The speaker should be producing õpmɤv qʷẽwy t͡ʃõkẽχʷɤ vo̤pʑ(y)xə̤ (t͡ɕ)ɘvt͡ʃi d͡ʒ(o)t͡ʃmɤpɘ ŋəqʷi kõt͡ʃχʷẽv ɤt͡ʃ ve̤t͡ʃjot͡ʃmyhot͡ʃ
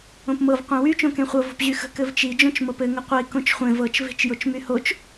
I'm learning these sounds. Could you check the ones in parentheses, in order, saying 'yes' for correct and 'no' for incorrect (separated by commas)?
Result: yes, no, no